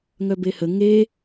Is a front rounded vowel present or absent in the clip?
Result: present